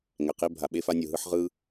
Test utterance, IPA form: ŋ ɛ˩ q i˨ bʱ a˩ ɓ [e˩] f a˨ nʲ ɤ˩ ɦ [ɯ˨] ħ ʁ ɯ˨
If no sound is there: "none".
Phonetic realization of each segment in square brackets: e˨, ɯ˨

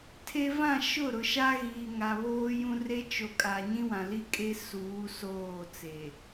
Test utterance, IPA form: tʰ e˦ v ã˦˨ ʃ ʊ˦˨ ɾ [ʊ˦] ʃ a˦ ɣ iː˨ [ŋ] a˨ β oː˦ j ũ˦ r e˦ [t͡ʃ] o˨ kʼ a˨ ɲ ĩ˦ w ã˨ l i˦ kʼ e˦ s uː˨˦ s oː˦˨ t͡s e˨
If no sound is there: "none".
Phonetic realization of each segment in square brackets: ʊ˨, ŋ, t͡ʃ

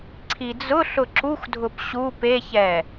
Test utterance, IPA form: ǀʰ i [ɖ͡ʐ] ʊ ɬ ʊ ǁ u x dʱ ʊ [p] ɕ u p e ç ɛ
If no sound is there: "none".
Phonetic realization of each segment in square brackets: d͡z, p

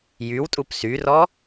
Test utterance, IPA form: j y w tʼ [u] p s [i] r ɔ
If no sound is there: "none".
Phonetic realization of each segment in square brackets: u, y

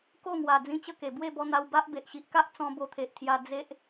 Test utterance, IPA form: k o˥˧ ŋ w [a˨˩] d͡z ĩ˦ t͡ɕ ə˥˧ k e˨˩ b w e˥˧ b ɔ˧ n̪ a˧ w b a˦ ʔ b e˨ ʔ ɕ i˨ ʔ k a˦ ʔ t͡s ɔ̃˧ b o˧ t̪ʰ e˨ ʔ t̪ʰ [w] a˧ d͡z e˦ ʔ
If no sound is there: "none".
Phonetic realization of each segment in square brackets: a˨˩, j

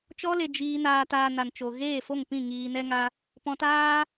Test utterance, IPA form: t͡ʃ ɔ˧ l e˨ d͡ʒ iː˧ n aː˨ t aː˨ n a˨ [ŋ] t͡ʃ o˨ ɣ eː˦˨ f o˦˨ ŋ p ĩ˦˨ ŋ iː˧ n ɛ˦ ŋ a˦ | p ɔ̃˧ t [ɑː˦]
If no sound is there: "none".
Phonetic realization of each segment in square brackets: n, aː˦

